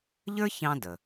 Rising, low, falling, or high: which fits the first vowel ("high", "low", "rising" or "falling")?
high